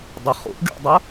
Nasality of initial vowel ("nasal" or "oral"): oral